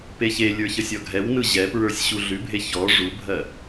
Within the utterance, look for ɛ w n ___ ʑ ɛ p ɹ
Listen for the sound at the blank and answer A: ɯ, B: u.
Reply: A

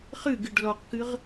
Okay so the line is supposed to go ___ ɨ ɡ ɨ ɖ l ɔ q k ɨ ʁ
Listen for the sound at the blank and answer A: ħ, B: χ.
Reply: B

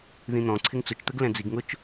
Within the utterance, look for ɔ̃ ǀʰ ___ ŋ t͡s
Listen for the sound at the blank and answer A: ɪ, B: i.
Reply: A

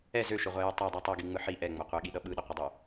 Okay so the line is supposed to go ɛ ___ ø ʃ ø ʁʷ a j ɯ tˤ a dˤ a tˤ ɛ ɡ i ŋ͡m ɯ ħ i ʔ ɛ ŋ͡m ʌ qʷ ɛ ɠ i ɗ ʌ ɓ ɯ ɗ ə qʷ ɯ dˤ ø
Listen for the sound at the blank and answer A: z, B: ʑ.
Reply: A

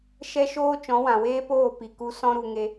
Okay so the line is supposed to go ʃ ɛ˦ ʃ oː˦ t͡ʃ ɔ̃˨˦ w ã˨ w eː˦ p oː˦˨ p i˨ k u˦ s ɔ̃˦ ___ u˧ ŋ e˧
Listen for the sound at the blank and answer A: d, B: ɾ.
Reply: B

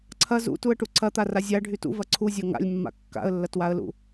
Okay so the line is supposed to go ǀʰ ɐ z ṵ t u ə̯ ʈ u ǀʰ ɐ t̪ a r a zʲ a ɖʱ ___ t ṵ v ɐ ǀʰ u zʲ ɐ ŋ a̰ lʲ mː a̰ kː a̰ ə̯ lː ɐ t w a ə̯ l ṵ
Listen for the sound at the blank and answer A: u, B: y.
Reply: B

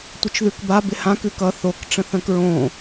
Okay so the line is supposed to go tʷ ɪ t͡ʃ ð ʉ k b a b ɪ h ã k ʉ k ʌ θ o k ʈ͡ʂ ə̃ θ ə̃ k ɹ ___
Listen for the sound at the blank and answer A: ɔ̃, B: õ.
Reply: B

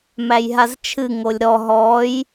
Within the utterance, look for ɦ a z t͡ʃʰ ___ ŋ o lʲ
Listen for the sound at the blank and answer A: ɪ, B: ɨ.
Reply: B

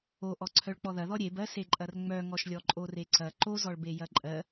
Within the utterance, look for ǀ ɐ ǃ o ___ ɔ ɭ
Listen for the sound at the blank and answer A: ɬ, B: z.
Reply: B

